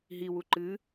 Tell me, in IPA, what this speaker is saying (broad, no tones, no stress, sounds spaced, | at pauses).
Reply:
ɦ i w u ǃ ɨ